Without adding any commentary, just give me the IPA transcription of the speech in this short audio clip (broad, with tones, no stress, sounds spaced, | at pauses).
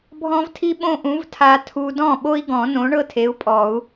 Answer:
bʱ ɔ̃˥ v tʰ i˥ ɓ õ˥ ʔ ũ˨˥ v tʰ a˧ tʰ u˧ d ɔ̃˥˩ ɓ o˥ i̯ ɡ ɔ̃˨˩˦ n õ˨˥ ɳ ɤ˥ tʰ e˨˥ u̯ pʼ ɔ˨˩˦ u̯